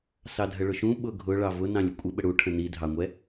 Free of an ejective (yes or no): no